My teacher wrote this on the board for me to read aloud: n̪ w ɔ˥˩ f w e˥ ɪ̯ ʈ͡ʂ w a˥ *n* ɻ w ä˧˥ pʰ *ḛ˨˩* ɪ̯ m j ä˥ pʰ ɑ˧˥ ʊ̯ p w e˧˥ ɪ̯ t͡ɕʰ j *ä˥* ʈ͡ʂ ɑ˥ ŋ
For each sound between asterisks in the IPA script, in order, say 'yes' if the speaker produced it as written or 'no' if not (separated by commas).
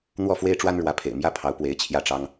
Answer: yes, yes, no